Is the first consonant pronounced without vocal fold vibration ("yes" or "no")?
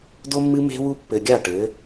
no